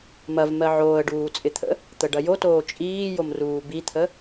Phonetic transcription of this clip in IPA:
m ɐ v m ɜ ʕ oː ə̯ ɖ uː t͡sʼ ɪ t̪ʰ ə̰ | t̪ ə ɖ ɐ j o t oː t͡ʃʼ iː j o m r uː b i t̪ʰ ə

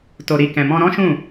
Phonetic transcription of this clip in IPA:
t o˨ ɾ i˨ k ɛ̃˨ m ɔ̃˧ ɾ ɔ̃˦ ʃ ũ˦˨

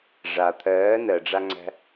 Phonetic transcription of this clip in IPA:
ʐ a t̪ʰ ɜː n ɜ ɖ͡ʐ a ŋ͡ǀ æ̤

